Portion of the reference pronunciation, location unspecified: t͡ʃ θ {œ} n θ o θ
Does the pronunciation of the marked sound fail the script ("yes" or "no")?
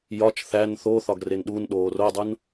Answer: yes